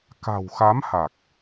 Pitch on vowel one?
low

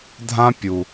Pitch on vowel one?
high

